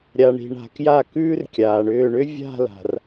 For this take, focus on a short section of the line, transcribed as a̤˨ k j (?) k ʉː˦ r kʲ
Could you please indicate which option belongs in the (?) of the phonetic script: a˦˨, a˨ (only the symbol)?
a˦˨